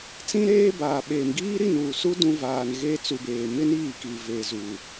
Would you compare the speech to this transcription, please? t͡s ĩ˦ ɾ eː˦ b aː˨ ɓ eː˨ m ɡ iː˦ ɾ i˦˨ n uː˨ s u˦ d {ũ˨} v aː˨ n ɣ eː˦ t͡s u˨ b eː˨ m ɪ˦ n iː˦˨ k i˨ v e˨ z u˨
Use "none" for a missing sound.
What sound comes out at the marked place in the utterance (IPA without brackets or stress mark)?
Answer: ũ˦